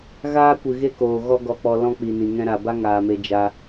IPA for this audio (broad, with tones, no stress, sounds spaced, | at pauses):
ɣ aː˦ kʷ ɨ˨ ɣ e˦ k oː˨ ɣ ɔ˦ ɡ ɔ˧ k͡p ɔ˧ l ɔ̃˦ k͡p i˨ n ĩ˨ ŋ ɛ̃˧ ɾ a˨ b a˦ ŋ aː˨ m e˧ d͡ʒ a˧